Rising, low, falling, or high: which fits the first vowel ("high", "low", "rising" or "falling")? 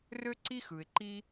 high